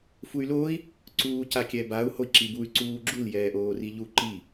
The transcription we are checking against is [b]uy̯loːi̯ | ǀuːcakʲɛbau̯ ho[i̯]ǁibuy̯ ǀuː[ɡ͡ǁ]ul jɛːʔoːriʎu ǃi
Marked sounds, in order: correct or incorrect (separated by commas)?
incorrect, correct, correct